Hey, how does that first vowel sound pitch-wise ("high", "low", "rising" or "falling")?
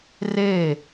falling